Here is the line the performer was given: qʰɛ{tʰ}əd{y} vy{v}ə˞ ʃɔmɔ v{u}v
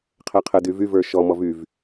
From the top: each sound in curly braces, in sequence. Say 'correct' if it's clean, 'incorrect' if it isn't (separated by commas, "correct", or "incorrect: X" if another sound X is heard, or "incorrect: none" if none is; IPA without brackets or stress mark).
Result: incorrect: qʰ, correct, correct, incorrect: y